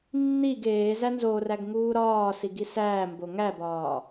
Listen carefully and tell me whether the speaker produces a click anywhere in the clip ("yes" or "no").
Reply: no